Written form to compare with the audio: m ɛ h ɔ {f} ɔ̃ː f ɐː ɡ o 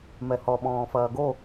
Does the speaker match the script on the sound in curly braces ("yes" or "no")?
no